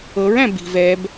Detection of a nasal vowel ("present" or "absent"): present